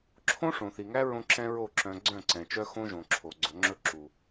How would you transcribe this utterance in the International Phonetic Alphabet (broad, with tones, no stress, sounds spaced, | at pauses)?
ǁʰ õ˦ ʂ õ˨ θ i˨ ŋ æ˦ ɹ õ˦ ǁ ɛ̃˦ ɹ o˦˨ ǁ œ̃˨ ɡ͡ǀ œ̃˦˨ ǀ ɛ̃˨ t͡ʃ œ˦ x õ˦ ʒ õ˨ ǁʰ o˨ ɡ͡ǀ ɵ˨˦ ŋ͡ǁ ɵ˦ ǁ u˨